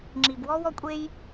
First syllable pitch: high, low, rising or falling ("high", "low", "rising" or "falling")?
low